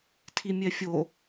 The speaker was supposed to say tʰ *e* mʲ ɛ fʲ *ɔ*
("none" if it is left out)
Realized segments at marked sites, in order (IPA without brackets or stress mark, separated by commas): i, o